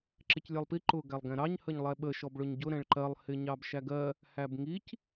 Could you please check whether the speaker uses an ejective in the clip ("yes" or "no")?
no